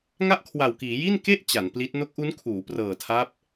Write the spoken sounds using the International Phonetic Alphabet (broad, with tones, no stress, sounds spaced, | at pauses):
ŋ a˥˩ ʔ kʰ w a˨˩ w k iː˩˦ j i˥˩ n k e˥˩ ʔ t͡ɕ a˩˦ n p l i˦˥ t̚ n o˦˥ k̚ ʔ u˦˥ n kʰ uː˩˦ p r ɤː˨˩ tʰ a˦˥ p̚